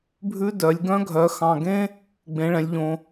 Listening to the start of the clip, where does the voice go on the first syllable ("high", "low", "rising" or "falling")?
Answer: high